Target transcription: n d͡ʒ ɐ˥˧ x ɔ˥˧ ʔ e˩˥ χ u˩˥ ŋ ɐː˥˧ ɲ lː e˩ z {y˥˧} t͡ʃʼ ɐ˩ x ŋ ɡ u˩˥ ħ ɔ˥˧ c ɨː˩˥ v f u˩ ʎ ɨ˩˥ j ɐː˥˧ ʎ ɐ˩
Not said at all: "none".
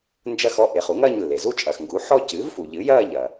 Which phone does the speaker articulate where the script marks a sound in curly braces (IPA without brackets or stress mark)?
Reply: u˥˧